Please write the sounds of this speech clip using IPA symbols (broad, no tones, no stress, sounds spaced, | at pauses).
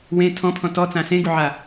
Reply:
w ẽ tʰ ɔ̃ pʰ ɔ̃ t ɔ t͡s ã s ẽ ɡ u ʕ a